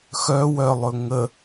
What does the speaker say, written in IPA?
x œ w œ lˠ ɵ ŋ ə

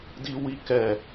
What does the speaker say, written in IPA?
d i˦ w i˦ k ɛ˦˨

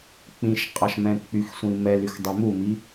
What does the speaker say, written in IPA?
k͡p ĩ ʃ qʼ ɑ ʃ m ɛ̃ k͡p y x sʷ ĩ m ɛ l y x dˤ ɛ m u m i

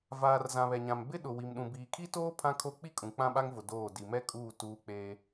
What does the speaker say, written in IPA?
v aː˨ r z ã˨ β ɛ˨ ɲ ã˨ m b ɪ˦ ɗ ʊ˨ w i˨ m ɗ ũ˨ b iː˨ kʰ i˦ t oː˦ pʰ ã˦ kʰ o˦ k͡p i˦ kʼ ũ˨ k͡p ã˦ ɓ a˦ ŋ v ʊ˨ d oː˦˨ d i˨ m ɛ˦ kʼ uː˦˨ t uː˦ k͡p eː˦

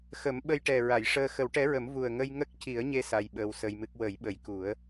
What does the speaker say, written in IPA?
x ə˨˩˦ m ɓ ə˧ j ʈ ɛ˨˩ ɹ a˨˩˨ j ʂ əː˧ x ə˨˩˦ w ʈ ɛ˧˥ ɹ ə˨˩˦ m v u˨˩ ə̯ ŋ ə˧ j ŋ ə˦˥ k̚ c i˨˩˦ ə̯ ɲ e˧ s a˧ j ɓ əː˧ w s ə˧ j m ɨ˦˥ k̚ w ə˨˩˦ j ɓ ə˨˩ j k u˨˩˦ ə̯

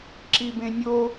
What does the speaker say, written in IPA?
ǁ i b ẽ nʲ o

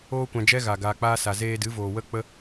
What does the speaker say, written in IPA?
oː˦ kʷ ã˧ d͡ʒ ɛ˦ ɣ a˨ ɡ aː˨ k͡p aː˦ s a˨ z eː˧ d ɨ˨˦ v oː˨ w ə˦ k͡p ə˦

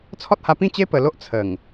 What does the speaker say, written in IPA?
t͡sʰ ɔ˦ t̚ h a˧ p ĩ˥˧ t͡ɕ e˦ p ə˧ l o˦ ʔ t͡sʰ ə˨˩ ŋ

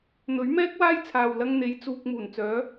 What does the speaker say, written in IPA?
n̪ ɵ˨˥ ɥ m ɛː˥ k̚ w aː˥ j t͡sʰ aː˨ w l ɐ˧ ŋ n̪ e˨˥ j t͡s uː˧ k̚ m uː˨˩ n t͡s œː˨˥

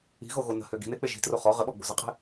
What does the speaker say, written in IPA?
i̤ ɣ o ɣ o n ə̤ h ø ɡ i̤ n e k͡p e ʒ i̤ t r o χ ɔ ʁ ə ɓ ɔ ɡ͡b o̤ z ə qʼ e̤

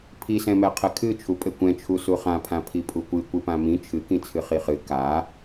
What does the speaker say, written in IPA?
pʰ i s ɛ̃ m ɛ qʰ ɘ kʰ ɨ t͡ʃʰ u pʼ ɘ kʷ ɛ̃ t͡ʃʰ u s u χ ã pʰ ã pʰ i pʼ u kʷ ɨ kʷ ɨ p ã m ĩ t͡ʃʰ ɨ k ĩ t͡sʰ ɨ χ i χ ɨ k a

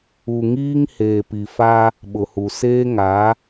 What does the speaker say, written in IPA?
u˨ ŋ iː˦ ŋ h eː˨ p i˨ f a˦ | ɓ ʊ˨ h u˨ s eː˦ ŋ a˨˦

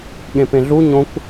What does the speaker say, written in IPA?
ɠ ẽ p ẽ ɮ u ɲ õ kʷ

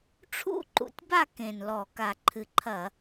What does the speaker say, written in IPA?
ʈ͡ʂʰ ṵ˥˧ ǃ ṵ˨˦ tʲ b a˥˧ k ẽ˨˩ n l ɔ˧˩˧ k a˨˩ ǃʰ ɨ˨˩ ǃʰ ɐ˧˩˧

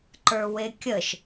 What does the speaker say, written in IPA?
ǃ ə˞ w e kʲ ə ʃ

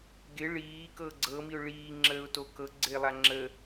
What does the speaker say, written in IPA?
ɡ ɪ ɭ iː k ɤ ɡ͡ǀ ɤ m i ʊ̯ ɭ iː ŋ͡ǁ əː ʊ̯ t o k ɤ ɡ͡ǀ ɪː lˠ a ŋ͡ǁ ə

